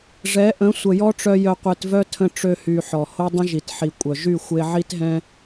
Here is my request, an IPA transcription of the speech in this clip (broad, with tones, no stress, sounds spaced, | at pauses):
ʐ ɛ˨˦ ʔ ə̃˨˦ sʷ ə˨ j ɔ˦ ʈ͡ʂ œ˧ j œ˧ qʷ e˧ t v œ˦ tʰ ə̃˧ ʈ͡ʂ ø˧ h y˨ ħ ɔ˨ h o˦ dˤ ə̃˦ ʒ i˨ t ħ i˨ kʷʼ œ˨ ʒ y˦˨ xʷ e˧ ʕ i˦ t ɦ ɛ̃˦